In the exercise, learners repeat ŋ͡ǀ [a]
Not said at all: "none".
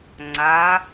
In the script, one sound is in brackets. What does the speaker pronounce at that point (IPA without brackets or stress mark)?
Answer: a